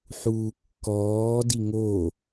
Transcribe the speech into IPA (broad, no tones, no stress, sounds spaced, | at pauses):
ħ uː kː ɔː d i ŋ o